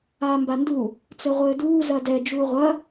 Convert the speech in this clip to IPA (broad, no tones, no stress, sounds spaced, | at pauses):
aː m b a n d u | t͡s ɘ ʁʷ ɘː d uː z ɐ d ɛ d͡ʒ uː ʁʷ ɐ